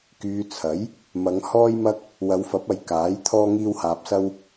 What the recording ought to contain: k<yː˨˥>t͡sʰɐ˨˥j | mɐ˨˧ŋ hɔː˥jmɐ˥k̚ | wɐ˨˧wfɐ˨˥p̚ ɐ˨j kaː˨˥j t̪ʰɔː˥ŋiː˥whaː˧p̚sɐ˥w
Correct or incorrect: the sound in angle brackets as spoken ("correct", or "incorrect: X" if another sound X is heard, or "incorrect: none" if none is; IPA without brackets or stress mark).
incorrect: yː˧